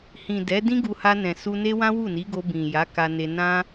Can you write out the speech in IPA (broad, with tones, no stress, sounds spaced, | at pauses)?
h ĩ˨ d ɛ˨˦ d ĩ˦ ɡ u˧ h a˧ n ɛ̃˨ s u˧ n e˦ w ã˦ w u˦˨ n i˨˦ ɡ o˧ b ĩ˨ j a˨˦ k a˧ n e˧ n ã˦